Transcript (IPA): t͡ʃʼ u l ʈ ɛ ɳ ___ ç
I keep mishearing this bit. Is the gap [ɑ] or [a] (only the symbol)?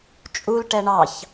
ɑ